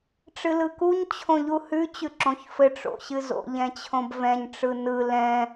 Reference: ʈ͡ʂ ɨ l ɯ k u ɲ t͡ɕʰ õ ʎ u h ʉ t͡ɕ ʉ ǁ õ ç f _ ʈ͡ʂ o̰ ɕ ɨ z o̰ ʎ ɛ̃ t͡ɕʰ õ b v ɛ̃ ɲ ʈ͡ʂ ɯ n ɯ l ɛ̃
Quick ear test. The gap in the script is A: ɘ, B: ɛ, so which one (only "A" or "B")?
A